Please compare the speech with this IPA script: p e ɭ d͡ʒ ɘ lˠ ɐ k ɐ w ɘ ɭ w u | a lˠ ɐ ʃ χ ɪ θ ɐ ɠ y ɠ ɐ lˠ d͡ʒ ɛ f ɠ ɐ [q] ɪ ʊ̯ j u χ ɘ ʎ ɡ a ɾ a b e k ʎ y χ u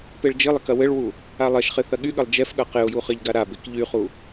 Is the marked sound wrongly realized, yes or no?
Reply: no